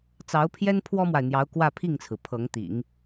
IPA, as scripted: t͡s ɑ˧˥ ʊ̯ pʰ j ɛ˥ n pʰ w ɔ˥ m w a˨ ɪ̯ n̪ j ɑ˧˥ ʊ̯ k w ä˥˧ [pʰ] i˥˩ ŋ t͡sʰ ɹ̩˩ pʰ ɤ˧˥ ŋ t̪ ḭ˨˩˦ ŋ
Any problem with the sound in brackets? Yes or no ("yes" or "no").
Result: no